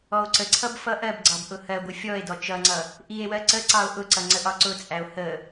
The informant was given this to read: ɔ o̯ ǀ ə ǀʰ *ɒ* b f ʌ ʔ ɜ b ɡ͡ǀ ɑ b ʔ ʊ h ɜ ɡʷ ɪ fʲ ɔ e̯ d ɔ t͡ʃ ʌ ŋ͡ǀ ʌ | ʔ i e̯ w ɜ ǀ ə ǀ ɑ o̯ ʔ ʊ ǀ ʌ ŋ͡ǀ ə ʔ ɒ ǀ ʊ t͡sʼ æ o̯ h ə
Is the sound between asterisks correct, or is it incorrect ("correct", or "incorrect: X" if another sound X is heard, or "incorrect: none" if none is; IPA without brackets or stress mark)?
incorrect: ʌ